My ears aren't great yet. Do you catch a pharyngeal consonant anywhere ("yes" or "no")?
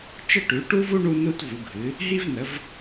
no